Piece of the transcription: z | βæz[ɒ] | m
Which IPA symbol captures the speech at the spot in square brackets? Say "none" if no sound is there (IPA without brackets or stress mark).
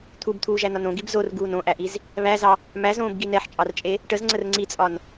ɑ